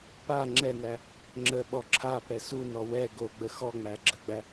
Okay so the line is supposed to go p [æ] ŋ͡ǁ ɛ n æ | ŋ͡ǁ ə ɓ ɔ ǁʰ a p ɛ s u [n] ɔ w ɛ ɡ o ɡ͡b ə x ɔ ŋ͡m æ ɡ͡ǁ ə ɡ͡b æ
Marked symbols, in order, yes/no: no, yes

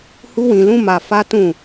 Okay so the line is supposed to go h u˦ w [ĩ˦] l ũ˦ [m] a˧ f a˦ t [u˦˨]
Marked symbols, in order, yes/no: no, yes, no

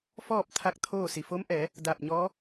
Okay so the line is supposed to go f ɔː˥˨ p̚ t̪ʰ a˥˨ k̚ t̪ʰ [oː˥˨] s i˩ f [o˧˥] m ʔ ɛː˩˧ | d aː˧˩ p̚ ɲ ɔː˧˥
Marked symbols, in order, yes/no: yes, yes

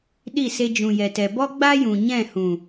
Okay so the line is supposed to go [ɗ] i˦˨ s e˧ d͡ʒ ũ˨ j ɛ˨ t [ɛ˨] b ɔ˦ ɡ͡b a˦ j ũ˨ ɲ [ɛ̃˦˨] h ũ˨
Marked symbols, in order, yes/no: yes, yes, yes

